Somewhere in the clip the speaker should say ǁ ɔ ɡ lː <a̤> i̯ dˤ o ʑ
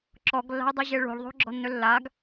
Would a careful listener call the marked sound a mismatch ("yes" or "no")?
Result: no